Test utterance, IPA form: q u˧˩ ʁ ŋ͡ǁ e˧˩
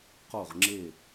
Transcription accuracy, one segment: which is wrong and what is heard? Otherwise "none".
u˧˩ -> o˧˩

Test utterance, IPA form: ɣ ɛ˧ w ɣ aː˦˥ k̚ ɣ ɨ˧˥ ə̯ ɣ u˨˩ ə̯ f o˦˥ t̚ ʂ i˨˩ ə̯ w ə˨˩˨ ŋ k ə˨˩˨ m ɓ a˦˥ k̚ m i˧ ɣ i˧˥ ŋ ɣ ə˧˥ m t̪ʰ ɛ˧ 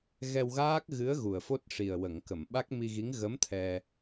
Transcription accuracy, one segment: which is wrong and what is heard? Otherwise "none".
none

